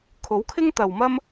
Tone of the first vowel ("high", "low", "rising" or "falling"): rising